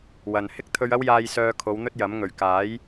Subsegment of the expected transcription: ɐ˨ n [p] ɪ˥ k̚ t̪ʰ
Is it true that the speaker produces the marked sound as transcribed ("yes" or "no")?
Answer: no